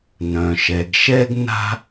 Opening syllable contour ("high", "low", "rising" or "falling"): low